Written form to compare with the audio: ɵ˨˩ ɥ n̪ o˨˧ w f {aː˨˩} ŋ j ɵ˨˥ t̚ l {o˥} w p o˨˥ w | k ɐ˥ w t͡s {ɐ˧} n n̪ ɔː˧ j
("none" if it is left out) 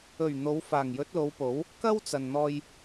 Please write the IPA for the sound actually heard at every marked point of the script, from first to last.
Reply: aː˨˩, o˨˧, ɐ˨

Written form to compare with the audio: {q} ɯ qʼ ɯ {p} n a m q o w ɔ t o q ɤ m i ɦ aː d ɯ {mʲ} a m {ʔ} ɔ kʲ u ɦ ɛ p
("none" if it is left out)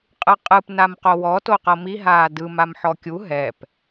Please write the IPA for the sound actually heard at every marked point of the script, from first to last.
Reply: qʼ, p, m, ħ

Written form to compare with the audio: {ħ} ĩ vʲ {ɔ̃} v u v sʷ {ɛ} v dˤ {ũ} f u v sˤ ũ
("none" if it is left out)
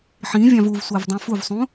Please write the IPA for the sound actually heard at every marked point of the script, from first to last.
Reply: ħ, ɑ̃, æ, õ

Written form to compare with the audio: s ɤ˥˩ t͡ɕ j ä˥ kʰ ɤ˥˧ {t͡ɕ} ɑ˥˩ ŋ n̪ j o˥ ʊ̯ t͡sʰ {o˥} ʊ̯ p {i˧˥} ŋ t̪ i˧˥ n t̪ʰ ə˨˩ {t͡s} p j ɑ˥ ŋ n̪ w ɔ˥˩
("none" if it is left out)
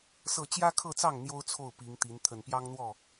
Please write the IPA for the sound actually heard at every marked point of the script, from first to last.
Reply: t͡s, o˥˩, i˧˥, n

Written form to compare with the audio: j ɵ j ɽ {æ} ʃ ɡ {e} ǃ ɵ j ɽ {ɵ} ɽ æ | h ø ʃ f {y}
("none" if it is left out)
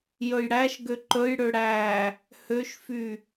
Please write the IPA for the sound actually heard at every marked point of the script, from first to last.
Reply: æ, ø, ø, y

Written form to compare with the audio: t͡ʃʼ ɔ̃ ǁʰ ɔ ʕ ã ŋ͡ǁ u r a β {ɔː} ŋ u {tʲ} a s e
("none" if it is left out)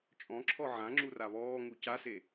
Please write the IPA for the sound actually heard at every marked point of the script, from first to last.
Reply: ɔː, c

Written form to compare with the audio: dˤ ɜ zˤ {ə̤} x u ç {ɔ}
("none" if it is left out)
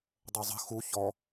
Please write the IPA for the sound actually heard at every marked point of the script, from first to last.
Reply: ə̤, ɔ

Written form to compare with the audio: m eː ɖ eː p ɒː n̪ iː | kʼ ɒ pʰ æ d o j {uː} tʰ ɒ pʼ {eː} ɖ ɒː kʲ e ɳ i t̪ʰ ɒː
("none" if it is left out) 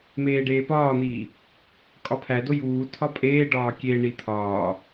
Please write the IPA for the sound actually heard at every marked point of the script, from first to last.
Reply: uː, eː

